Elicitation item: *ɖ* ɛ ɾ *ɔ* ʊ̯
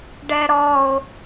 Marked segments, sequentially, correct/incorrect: correct, correct

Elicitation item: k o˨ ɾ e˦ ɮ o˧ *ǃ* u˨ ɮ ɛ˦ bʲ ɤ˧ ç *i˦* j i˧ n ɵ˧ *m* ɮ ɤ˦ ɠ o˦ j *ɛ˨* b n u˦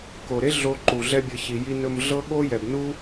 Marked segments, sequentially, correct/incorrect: correct, incorrect, correct, correct

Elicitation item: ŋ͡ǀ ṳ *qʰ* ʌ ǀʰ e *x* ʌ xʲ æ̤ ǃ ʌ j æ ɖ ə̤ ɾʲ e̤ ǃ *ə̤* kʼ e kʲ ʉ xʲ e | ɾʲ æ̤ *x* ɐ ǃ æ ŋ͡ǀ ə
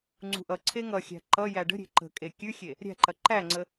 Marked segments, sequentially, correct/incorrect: incorrect, incorrect, correct, incorrect

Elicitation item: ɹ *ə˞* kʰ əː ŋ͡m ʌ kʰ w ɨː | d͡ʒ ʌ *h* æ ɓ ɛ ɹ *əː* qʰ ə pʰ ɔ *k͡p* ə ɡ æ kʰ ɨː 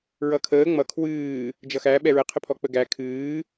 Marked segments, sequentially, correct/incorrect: incorrect, incorrect, incorrect, correct

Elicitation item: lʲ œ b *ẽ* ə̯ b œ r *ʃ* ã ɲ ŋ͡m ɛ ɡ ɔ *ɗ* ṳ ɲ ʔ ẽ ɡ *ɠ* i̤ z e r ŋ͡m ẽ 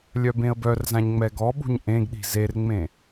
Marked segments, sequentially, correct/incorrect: correct, incorrect, incorrect, incorrect

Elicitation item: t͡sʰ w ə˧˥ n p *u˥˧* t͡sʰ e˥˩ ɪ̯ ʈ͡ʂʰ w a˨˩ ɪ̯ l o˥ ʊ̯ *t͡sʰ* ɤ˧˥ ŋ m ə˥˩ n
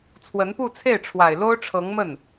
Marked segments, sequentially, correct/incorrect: correct, incorrect

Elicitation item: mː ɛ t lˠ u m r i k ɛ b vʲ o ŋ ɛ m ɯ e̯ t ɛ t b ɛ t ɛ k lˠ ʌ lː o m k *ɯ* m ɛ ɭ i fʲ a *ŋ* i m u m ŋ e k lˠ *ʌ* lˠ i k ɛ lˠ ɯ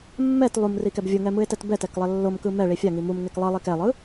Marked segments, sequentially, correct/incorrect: correct, correct, correct

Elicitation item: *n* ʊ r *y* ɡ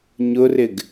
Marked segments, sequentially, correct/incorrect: incorrect, incorrect

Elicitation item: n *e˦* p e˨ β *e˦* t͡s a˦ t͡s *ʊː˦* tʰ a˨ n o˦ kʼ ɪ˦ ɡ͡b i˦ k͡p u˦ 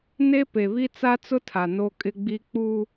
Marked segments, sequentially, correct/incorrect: correct, incorrect, incorrect

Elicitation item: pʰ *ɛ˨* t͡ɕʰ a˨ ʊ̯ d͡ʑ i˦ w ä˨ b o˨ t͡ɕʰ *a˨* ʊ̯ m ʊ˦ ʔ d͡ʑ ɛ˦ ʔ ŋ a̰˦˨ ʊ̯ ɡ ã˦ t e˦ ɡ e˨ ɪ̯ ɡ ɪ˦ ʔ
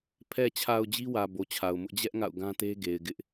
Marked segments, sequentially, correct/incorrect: correct, correct

